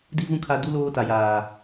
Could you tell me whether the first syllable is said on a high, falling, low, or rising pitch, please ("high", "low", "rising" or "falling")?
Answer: high